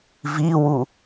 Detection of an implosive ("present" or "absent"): absent